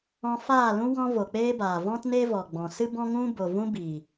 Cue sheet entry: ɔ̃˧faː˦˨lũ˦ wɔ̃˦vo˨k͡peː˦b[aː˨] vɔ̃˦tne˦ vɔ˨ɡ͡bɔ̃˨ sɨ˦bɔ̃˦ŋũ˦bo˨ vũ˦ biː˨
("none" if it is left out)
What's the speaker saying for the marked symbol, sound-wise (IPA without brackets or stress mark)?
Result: aː˨